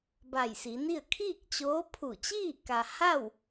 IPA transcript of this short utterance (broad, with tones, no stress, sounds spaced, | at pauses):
b a˧˩ j s i˩˧ n i˥˨ ə̯ kʰ iː˥˨ k̚ t͡ɕ oː˧˥ pʰ u˧˩ t͡ɕ iː˥˨ k a˧ h a˥˨ w